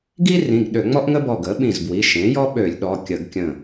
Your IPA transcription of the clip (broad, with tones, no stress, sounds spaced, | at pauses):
ɡ i˥ r ĩ˩˧˩ ɡ ɗ ø˧˩˧ ŋ͡m ɔ˥ ʔ ŋ ə˥ b ɔ˧˩ ɡ ə˩˥ ɓ ĩ˧˩ z b w i˩˧˩ ʃ ẽ˩˥ j ɔ˥ ɓ ø˧˩˧ lʲ ɗ ɔ˩˧˩ kʲ ə˧˩˧ ɡ kʲ ə̃˧˩